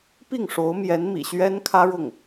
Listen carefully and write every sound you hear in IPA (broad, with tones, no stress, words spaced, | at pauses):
pi˥˩ŋʂo˧˥ʊ̯mjɛ˧˥n mḭ˨˩ɕɥɛ˥nkʰä˥ɻʊ˥˩ŋ